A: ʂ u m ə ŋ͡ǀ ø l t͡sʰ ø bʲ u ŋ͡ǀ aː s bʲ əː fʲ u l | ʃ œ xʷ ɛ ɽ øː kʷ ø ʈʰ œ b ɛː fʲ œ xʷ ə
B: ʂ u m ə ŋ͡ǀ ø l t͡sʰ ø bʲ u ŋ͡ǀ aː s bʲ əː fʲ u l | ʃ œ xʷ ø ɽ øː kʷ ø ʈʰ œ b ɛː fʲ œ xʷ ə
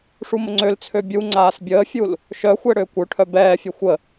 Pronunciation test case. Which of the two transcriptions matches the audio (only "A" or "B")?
A